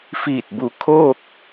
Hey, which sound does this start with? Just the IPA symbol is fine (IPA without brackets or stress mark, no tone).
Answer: f